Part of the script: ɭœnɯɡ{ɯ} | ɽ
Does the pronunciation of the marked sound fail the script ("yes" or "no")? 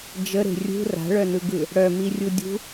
no